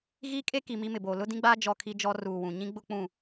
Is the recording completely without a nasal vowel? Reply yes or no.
no